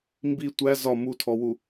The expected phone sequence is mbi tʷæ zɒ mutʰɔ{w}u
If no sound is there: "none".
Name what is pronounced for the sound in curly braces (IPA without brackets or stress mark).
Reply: w